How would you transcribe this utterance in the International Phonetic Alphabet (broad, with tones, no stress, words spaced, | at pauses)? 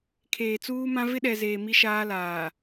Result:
kʰeː˨t͡suː˦mã˦ vɪ˦ɗɛ˨ zeː˨ mi˦ʃaː˦laː˨